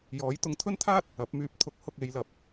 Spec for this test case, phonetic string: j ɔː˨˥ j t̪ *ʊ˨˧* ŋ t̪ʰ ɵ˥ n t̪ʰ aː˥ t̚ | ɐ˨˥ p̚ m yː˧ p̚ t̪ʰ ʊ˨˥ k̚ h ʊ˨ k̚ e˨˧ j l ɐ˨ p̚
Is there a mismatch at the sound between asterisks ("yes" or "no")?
no